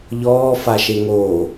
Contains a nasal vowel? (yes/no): no